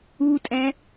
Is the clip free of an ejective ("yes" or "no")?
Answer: no